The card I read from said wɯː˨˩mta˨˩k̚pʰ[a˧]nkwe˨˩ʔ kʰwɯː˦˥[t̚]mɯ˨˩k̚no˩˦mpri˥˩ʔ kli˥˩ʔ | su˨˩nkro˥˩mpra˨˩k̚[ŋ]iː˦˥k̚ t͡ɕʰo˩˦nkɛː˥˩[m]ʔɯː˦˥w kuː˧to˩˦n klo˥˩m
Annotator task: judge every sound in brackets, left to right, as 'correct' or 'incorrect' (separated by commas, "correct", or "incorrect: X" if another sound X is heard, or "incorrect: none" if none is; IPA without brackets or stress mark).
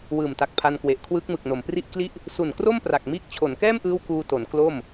correct, incorrect: k̚, incorrect: m, correct